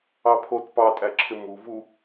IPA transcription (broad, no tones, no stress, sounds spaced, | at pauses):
ɑ pʰ o t p ɑ tʼ æ ǁʰ ɪ m u v u